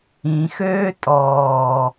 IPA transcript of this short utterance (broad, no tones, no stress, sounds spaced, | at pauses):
ĩ x øː tʼ ɔː